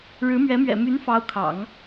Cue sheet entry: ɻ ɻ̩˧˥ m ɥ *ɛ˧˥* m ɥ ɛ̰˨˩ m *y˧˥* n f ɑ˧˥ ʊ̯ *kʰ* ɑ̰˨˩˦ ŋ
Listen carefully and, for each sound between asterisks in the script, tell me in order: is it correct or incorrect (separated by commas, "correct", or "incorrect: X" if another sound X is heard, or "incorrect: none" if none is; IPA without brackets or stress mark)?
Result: correct, correct, correct